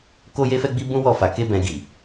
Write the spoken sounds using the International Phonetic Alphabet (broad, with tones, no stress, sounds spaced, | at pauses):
k o˦ j e˦ f ɛ˦ ɡ͡b i˦ b ũ˦ w ɔ˦˨ f a˧ k e˦ b ɛ̃˧ ɡ i˨